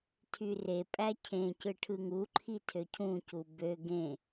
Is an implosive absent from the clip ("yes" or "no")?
yes